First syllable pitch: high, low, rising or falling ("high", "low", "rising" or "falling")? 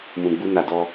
low